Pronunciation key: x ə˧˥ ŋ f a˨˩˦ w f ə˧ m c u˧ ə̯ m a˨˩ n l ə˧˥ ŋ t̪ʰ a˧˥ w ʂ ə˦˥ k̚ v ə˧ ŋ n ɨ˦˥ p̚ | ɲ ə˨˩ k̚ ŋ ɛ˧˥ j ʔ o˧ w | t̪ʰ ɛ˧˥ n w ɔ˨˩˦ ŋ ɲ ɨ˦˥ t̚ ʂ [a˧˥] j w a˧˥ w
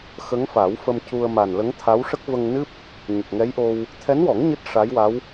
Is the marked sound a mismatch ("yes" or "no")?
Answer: no